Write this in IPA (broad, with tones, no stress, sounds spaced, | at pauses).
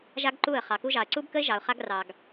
ʒ a˦ ɡ ǃ u˦˨ ə̯ χ ɑ˨ k u˦ ʒ ɑ˨ ə̯ ǀ u˦ b k ə˦ ɪ̯ ʒ ɑ˨ ʊ̯ χ a˦ ɡ r ɑ˨ ɡ